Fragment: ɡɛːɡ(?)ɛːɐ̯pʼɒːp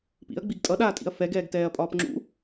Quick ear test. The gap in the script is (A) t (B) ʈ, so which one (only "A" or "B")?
A